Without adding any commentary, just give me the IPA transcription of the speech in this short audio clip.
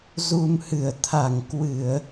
z u˧ m h ɨ˧˩ ə̯ t̪ʰ a˧˩ ŋ k w ɨ˧˩˨ ə̯

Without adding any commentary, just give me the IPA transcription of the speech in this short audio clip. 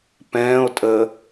p ɛ̃ː o̯ tʼ əː

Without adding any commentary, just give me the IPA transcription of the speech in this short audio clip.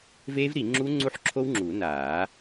v eː˦˥ v ɾ i˨˩˦ ŋ͡ǁ uː˦˥ ŋ͡ǀ u˦˥ ħ ǁʰ o˦˥ w ŋ͡ǁ uː˨˩˦ n aː˨˩˦

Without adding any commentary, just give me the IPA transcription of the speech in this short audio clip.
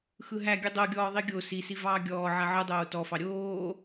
x ɯ ɦ æ ɡʲ ɯ dˤ o ɡʲ ɔː ðˤ i ɡʲ o s i s i v ɑː ɡʲ ɔː ʕ a ʕ ɯ dˤ oː t ɔ f ɑ ɾʲ oː

